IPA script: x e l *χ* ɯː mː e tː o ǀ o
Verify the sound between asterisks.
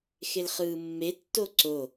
correct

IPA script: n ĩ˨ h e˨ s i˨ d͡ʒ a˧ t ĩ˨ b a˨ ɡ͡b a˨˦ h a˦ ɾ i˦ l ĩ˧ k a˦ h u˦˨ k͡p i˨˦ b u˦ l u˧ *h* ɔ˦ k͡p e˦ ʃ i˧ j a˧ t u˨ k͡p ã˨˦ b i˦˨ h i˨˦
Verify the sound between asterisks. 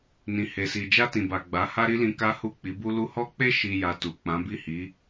correct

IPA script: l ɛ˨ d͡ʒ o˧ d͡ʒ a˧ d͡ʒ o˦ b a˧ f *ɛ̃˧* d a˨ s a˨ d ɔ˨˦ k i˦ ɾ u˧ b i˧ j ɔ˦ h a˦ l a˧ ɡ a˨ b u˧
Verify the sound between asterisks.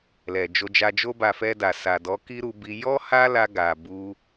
incorrect: ɛ˧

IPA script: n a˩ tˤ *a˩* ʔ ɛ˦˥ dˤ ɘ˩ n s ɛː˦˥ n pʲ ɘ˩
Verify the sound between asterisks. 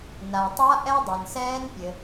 incorrect: a˦˥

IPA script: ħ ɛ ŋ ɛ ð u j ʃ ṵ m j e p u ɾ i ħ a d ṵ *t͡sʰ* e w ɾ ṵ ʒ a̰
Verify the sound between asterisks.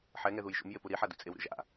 incorrect: t͡sʼ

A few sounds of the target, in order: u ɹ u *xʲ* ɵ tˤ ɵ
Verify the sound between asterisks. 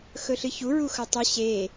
incorrect: x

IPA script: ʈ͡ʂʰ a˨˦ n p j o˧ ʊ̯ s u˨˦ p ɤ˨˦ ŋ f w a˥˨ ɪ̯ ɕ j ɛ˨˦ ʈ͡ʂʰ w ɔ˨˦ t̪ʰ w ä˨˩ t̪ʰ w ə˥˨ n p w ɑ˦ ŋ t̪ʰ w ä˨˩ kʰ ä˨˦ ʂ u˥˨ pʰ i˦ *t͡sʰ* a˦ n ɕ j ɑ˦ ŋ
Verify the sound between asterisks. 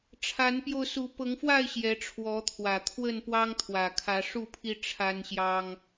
incorrect: ʈ͡ʂʰ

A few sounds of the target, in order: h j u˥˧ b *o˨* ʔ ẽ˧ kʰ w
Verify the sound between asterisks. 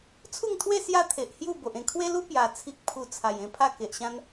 correct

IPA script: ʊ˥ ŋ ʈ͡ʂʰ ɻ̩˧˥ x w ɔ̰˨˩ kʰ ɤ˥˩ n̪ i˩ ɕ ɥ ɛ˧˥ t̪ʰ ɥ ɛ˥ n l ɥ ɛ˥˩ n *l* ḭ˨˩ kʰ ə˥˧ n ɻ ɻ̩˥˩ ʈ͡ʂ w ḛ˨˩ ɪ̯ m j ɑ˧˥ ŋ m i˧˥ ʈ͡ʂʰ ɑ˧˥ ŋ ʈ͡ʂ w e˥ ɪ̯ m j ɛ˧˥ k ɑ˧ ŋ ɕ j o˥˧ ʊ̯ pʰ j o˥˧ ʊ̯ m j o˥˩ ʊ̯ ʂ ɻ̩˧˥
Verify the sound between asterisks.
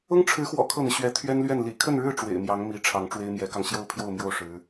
correct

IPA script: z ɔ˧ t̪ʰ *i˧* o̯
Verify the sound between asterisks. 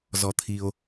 correct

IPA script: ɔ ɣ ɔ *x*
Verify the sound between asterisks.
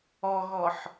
incorrect: ħ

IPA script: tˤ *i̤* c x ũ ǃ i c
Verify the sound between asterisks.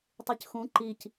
incorrect: i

